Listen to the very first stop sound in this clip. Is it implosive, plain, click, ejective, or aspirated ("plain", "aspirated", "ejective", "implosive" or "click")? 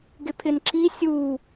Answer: plain